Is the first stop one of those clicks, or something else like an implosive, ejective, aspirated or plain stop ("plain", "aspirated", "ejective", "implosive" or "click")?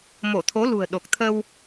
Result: aspirated